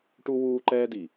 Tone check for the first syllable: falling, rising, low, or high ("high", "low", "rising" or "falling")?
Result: high